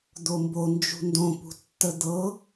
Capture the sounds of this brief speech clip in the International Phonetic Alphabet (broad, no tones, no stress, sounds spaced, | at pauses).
d̪ o m b o n d͡ʒ ṳ n d õ p ṳ tː ə d̪ ɤ